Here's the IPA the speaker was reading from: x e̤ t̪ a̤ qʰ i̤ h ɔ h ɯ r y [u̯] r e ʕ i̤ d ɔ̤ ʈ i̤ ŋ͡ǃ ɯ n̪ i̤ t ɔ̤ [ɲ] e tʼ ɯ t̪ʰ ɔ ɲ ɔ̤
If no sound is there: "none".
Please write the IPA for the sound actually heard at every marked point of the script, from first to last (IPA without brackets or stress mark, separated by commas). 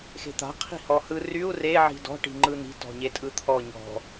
u̯, ɲ